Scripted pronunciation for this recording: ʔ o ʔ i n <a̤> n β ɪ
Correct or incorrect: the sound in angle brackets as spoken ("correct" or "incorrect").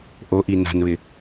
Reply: correct